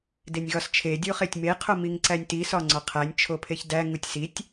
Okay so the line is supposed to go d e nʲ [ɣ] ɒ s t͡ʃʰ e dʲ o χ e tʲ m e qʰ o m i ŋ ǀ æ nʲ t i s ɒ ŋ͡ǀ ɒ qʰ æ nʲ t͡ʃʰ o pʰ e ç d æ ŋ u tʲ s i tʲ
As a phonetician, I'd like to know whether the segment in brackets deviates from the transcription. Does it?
no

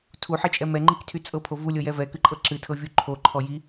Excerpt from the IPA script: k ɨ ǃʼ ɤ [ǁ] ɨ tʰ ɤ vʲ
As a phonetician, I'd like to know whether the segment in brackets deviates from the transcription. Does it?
no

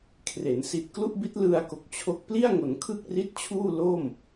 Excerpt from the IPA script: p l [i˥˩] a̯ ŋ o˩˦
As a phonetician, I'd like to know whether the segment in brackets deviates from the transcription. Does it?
no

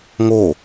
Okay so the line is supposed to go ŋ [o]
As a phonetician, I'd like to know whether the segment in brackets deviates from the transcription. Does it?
no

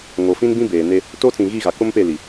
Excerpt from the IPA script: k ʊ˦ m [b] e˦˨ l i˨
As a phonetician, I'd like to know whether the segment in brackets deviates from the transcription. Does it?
yes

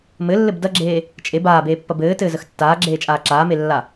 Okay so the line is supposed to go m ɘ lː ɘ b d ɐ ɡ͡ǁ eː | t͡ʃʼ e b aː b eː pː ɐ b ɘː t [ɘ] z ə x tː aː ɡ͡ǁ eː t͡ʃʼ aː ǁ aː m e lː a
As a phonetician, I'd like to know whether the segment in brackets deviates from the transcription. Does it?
yes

